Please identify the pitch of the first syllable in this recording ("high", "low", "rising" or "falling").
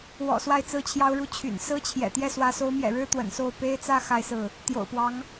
low